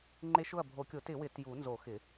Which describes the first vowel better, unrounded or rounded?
unrounded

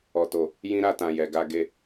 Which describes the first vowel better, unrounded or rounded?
rounded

